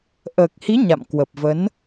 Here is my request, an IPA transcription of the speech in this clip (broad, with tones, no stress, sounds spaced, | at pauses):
ʔ əː˨˩ k̚ h i˨˦ ɲ a̰˧˨ m k w ə˨˩ p̚ v ə˨˦ n